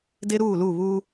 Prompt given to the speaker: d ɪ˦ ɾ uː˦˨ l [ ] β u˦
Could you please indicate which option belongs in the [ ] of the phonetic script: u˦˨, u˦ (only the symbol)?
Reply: u˦˨